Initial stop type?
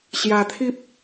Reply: aspirated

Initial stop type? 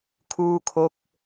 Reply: aspirated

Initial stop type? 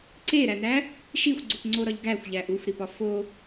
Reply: click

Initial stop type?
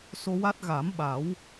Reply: plain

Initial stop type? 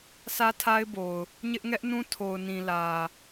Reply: aspirated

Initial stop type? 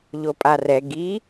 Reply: ejective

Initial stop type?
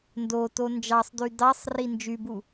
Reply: plain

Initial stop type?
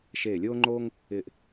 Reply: click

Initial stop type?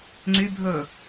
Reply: click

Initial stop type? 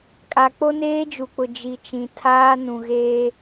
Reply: ejective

